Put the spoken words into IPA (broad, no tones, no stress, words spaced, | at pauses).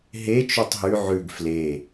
ɦe t͡ʃʉtˤɦʉ ʕʉɡ fle